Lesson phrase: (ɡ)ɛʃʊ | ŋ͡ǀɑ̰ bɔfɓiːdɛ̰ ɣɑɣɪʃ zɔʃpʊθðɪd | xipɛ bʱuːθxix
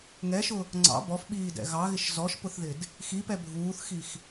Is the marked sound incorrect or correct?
incorrect: ŋ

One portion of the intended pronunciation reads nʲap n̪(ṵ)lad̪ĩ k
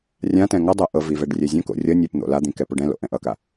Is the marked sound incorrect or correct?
incorrect: o̰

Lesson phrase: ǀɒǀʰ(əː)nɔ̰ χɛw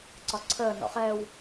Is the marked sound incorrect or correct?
correct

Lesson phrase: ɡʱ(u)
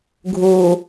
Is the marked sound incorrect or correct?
correct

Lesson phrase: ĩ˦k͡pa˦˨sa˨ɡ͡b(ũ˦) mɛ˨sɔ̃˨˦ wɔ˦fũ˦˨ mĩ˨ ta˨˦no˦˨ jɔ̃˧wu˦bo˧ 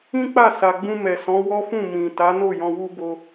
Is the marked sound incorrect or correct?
incorrect: ũ˧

